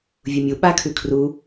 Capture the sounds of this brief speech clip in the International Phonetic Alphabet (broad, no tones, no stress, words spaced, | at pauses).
vʲumʲu ɓakʰʉ kʰru